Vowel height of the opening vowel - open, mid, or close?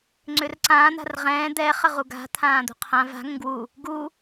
close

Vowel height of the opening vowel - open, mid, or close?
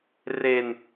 mid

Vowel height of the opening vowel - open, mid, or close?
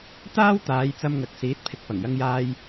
open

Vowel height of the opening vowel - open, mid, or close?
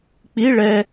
close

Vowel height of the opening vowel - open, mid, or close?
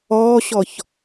mid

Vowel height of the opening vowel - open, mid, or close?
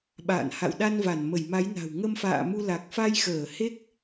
open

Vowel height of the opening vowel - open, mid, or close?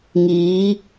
close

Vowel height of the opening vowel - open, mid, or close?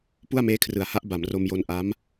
close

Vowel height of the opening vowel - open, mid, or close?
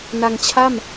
open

